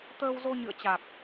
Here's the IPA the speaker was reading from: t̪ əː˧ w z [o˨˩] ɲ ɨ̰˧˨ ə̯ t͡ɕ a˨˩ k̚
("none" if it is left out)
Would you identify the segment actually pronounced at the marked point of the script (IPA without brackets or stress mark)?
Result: o˧